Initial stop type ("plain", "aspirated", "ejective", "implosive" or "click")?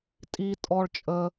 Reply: ejective